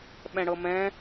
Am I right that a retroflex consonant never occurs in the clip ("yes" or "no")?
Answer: no